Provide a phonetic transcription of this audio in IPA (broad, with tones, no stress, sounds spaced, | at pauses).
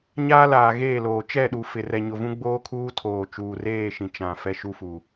ɲ aː˦ l aː˨ ɣ eː˦˨ l oː˨ t͡ʃ ɛ˦˨ ɗ u˨ f ɪ˨ r ɛ˨ ɲ ʊ˨ v ũ˦ ɡ͡b oː˦ kʰ uː˦ tʰ oː˨ t͡ʃ uː˨ r eː˦˨ ʃ ĩ˨ t͡ʃ ã˨ f ɛ˦ ʃ u˦ f u˨